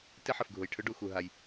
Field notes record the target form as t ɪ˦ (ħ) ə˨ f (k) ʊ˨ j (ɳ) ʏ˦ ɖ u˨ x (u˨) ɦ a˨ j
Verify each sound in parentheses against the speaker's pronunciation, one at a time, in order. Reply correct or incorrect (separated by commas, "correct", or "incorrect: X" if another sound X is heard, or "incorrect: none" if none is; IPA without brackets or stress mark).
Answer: correct, incorrect: ɡʱ, incorrect: ʈʰ, correct